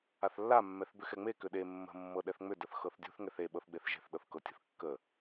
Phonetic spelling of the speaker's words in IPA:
aθlːa mːɛθbʏxɛŋ͡me kʏɗe mːə̤ mːɤɗɛθŋ͡mʏ dəθxɤθdʲṳθ ŋɛθe ɓɤθɡ͡beθʒe̤θ ɗɤθkɤtʲə̤θ kːə

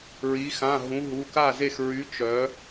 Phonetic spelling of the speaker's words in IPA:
ɹi˩˧xã˩˧˩ɦũ˩˧ ɦu˩˧˩ka˥˩ze˥˩x ɹy˨˥ t͡ʃœ˩˧

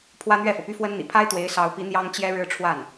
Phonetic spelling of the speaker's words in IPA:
pʰwä˥n̪ɥɛ˥˩fɤ˩py˥ fwə˥nn̪ḭ˨˩ pʰa˥ɪ̯t̪we˧˥ɪ̯sɑ˧˥ʊ̯pi˧˥ n̪jɑ˥ŋt͡ɕjɛ˥ ɻɻ̩˥˧ʈ͡ʂʰwa˥˩n

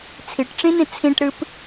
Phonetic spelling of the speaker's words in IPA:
t͡sʰiʈʈ͡ʂĩnĩ t͡sʰĩʈɾɨp

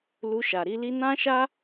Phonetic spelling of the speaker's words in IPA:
lu˧ʃa˨ɾi˨˦li˦ nã˦ʃa˦

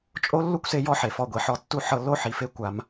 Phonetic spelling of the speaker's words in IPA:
t͡ʃʼo˦ lːu˦kʷse˧ jɔ˦ħe˨fɔ˧ɡʷi˨ ħɔ˧tːu˦ ħɤ˧lːo˦ħi˨fe˦ kʷa˧m

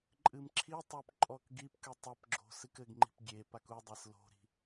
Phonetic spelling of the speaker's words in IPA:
ǃʼɨmǁʰitˤop ǃʼɔkɡipkɨ tˤɘpɡ͡ǁo̤ sɨkɘɡŋ͡ǃi̤p ɡʲe pakudˤes lo̤ɾi̤

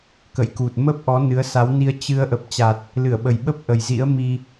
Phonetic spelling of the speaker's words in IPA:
kə̰˧˨jku˨˩t̚ mə˦˥p̚ ʔɔ˨˦nɨ˨˦ə̯sa˨˦wni˧ə̯ t͡ɕɨ˧ə̯ ʔə˨˩p̚t͡ɕa˨˩t̚ | lɨ˧˩ə̯ɓə˨˩jɓə˦˥p̚ʔə˨˩j zḭ˧˥ə̯mi˧

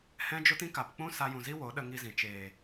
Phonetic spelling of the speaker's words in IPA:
hɛ̃˦d͡ʒo˦t ĩ˦ka˨pk͡pũ˦ sa˧jũ˨zi˦wo˨˦ ɗə˧ŋi˧zĩ˨ t͡ʃeː˨

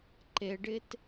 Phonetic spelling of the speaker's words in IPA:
ǃeɖɪt

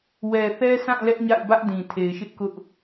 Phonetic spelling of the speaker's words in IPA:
wɛ˨θɛ˦sã˦˨ lɛ˦ʔɲa̰˦˨ɪ̯bä˦ʔdĩ˨ tʰe˨ɪ̯ʃɪ˦ʔkʊ˦ʔ

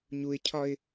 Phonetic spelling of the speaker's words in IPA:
ɲuɪ̯cʰɒɪ̯

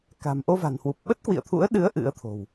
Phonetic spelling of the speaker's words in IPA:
ka̤˨˩mʔo˧ va̤˨˩nhwu˨˩p̚ ɓə˦˥t̚ kwḭ˧˨ə̯t̪ʰṵ˧˥ə̯ ɗɨ˨˦ə̯ ʔɨ̰˧˥ə̯t̪ʰo̤˨˩w

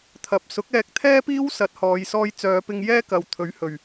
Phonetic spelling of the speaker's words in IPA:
t̪ʰɐ˨p̚ sʊ˨˥k̚ɛː˧k̚t̪ʰɛː˥ piː˥wsɐ˨˥t̚hɔː˨˧jsɔː˧j t͡sœː˨˧pɪ˧ŋ jɛː˥kɐ˨w t̪ʰɵ˨˥ɥhɵ˨ɥ

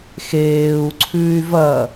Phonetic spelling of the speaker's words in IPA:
xeːu̯ǀʰʉːy̯ vɐ

